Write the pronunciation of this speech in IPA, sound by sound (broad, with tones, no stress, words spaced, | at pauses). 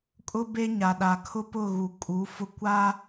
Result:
kʼʊ˦be˦ ɲa˨ɗa˨kʰʊ˦pʊ˦˨ ɣu˨ kʼu˨˦ fʊ˦kʷa˦